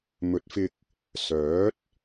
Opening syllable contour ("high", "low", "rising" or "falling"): rising